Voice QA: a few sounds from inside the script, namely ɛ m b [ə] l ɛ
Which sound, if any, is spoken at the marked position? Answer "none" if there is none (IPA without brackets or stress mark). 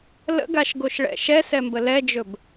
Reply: ə